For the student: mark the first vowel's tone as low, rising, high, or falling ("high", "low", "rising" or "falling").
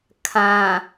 low